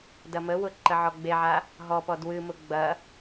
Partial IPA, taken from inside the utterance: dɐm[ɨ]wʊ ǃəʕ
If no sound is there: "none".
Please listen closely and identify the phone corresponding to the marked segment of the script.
ə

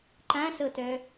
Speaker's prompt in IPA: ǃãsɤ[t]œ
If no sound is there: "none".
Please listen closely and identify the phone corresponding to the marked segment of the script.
t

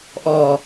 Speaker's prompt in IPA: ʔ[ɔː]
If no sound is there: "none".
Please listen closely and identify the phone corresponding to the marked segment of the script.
ɔː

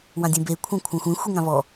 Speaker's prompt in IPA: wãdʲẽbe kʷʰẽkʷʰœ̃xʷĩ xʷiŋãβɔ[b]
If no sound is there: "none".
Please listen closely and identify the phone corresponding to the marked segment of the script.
none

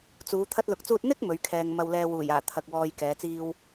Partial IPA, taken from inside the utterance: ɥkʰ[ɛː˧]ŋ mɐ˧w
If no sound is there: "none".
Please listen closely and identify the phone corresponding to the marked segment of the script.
ɛː˧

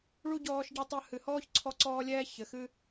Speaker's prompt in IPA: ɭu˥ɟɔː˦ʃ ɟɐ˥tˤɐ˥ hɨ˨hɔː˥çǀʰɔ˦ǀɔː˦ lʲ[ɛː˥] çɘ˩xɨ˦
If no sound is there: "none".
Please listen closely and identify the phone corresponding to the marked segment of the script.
ɛː˥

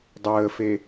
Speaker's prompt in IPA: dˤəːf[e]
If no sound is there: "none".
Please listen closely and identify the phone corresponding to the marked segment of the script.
e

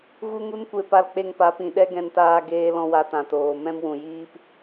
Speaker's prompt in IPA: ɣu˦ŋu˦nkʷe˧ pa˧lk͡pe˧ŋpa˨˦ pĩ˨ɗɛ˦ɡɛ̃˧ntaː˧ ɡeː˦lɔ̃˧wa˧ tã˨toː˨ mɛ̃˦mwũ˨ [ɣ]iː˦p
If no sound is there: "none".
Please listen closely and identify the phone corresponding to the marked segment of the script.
j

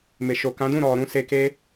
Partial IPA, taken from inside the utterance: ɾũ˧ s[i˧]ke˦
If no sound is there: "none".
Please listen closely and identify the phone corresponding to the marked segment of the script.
e˧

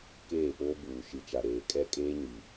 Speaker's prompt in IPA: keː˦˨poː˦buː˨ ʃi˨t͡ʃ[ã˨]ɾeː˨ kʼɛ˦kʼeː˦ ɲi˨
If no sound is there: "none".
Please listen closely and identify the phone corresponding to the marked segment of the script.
a˨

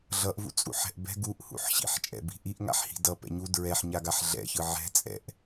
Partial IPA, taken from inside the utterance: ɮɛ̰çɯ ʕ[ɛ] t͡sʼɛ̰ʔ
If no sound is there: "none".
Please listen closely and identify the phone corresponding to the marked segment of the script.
ɛ̤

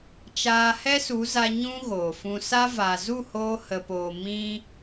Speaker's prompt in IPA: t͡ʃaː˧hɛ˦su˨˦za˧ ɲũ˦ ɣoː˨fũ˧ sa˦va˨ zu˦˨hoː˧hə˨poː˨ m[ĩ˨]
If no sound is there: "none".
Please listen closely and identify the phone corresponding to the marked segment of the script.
ĩ˧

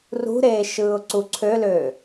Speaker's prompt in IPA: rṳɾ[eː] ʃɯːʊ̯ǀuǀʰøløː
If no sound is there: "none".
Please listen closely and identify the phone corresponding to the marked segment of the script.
eː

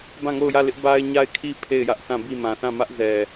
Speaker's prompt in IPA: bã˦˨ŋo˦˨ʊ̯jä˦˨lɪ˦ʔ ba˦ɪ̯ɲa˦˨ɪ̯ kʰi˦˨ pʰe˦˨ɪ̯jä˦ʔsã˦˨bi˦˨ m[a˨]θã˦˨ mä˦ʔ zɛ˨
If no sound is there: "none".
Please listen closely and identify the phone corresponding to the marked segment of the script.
ã˨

